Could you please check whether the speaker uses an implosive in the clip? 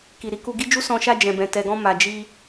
no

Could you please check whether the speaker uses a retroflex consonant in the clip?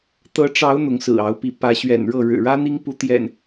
yes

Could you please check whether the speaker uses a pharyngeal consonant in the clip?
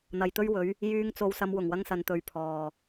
no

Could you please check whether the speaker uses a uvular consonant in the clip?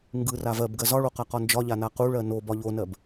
yes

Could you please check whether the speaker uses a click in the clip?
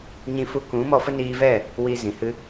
no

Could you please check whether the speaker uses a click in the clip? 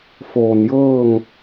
no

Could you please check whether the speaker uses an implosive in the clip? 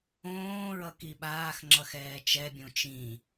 yes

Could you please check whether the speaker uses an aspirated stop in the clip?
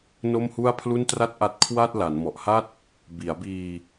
yes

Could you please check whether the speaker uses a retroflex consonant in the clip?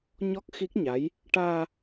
yes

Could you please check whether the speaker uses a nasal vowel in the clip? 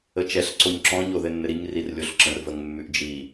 yes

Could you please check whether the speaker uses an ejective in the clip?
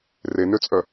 yes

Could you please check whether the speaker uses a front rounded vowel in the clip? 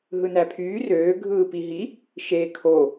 yes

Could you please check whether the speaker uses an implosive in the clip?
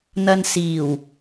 no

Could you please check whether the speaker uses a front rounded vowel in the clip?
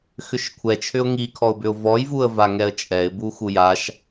yes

